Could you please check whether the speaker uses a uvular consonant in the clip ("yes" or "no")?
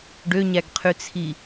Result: yes